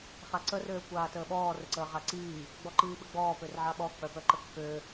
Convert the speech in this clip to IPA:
χaǀə røːkʷaːtəːɓɔː rəǀəːʁaǀiː | ɡ͡bɔǃiːɓəɡ͡bɔː pørʕaɓɔ k͡pœpœǃəkːø

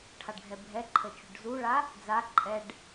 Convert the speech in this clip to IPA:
ʈʰaɖɡʱɛbʱɛǃʰə t͡ʃuɖzuɭa | d͡za ǃʼɛɖ

